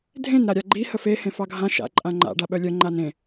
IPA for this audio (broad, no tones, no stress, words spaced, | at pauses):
dʱẽn ɾaɾʲaɡ͡ǃi həfe hẽfɑɡʱã ʃa̰ ǃʼãŋ͡ǃa̰ ɖaɓœlʲœ ŋ͡ǃanẽ